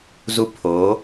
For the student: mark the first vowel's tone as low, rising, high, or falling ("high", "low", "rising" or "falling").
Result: high